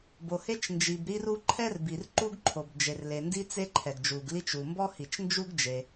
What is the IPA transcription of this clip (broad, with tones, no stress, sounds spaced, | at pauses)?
b o˩ h e˥ t͡ʃ n d͡ʒ i˩ b ɾ i˥ r u˥ ǃʰ ɛ˥ r b i˩ r ǃ u˥ ɡ ǃʰ o˩ b d͡ʒ e˩ r l e˩ n d i˥ t͡s e˥ ǃʰ ɛ˩ ɡ d͡ʒ u˩ ɡ l i˥ t͡ʃ u˩ m b ɔ˥ h i˩ t͡ʃ n d͡ʒ u˥ ɡ d͡ʒ e˩